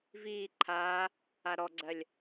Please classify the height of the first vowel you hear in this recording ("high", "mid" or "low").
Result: high